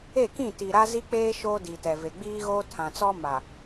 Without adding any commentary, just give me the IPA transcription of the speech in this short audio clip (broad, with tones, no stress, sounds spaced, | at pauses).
e˦˨ k ĩ˦˨ t i˨ ɾ a˦ z i˦ k͡p eː˦ ʃ oː˦ d i˨ t ɛ˨ v e˨ ɡ͡b iː˦ ɣ o˦ tʰ ã˨ t͡s ɔ˦ m a˨